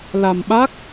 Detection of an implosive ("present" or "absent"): present